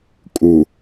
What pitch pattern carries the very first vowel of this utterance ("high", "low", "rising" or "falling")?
low